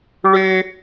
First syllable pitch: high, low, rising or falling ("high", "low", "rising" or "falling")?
high